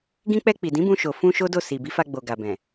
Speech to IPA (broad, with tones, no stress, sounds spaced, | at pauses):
ɡ ĩ˧ k͡p ɛ˧ k͡p i˨ d ĩ˨˦ b ũ˧ ʃ o˨ f ũ˧ ʃ o˦ d o˦˨ s i˨ b i˨˦ f a˧ ɡ͡b o˨ ɡ a˨ b ɛ̃˨